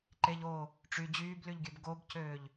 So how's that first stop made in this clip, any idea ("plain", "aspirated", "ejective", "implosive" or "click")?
click